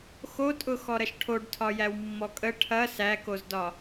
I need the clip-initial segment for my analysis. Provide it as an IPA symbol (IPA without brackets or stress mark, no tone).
x